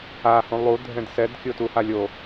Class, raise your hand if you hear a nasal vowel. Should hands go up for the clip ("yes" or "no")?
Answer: yes